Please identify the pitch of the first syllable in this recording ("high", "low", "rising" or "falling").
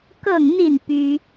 falling